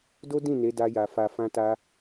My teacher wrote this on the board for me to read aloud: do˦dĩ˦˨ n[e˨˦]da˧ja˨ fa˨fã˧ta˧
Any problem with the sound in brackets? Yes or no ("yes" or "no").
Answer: no